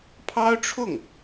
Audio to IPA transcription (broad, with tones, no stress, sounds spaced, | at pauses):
pʰ ɑ˥ ʊ̯ ʈ͡ʂʰ ʊ˥˩ ŋ